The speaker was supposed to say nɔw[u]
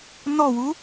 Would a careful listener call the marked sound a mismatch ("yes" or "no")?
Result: no